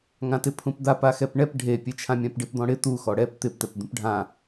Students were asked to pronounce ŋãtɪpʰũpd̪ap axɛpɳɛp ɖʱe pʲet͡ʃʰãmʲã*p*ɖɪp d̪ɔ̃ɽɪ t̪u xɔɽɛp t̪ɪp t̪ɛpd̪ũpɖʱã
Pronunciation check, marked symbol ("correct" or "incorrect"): correct